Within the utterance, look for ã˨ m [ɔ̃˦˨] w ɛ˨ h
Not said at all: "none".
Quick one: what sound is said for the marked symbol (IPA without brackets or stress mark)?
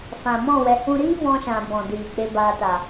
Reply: ɔ̃˦˨